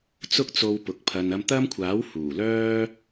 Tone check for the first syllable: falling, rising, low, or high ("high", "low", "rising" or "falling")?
high